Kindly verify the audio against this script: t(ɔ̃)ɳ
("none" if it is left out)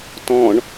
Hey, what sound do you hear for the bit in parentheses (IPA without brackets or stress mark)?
ɔ̃